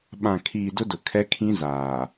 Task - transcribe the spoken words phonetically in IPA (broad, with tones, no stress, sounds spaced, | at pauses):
ɓ ã˨ kʰ iː˨ d ʊ˦ d ʊ˨ kʰ ɛ˦ kʰ ĩ˦ z aː˨